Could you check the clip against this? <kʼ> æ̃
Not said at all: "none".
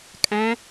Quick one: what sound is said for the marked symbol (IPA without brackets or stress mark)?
kʼ